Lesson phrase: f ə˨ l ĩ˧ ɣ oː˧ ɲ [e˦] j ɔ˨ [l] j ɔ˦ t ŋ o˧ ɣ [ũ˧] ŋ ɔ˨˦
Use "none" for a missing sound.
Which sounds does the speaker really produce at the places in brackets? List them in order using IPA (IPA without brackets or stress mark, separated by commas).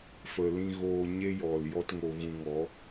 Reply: e˦, l, ũ˧